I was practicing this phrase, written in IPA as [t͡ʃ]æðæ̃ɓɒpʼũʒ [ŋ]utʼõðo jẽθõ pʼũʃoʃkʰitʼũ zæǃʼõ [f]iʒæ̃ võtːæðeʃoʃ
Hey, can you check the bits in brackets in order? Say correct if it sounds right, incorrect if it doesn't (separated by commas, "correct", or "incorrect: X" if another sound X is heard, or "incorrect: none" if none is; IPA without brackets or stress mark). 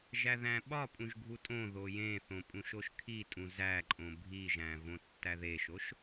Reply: incorrect: ʒ, incorrect: ɡʱ, incorrect: bʱ